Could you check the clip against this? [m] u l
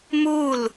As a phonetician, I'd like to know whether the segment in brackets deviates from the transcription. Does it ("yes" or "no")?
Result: no